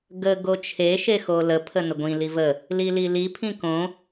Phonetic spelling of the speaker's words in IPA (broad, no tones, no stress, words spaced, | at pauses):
ɡə ɡot͡ʃʰeʃe xoləpʰə nəɡʷĩli və | lililipʰĩ kõ